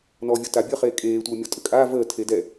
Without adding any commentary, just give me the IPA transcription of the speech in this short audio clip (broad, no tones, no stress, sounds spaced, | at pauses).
n ɔː vʲ ə t a bʲ ɘ χ eː kʼ eː tʷ ɘː mʲ ɔ tʼ ɘ kʼ aː v əː tʰ e d ɛ